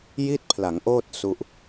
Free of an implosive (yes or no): yes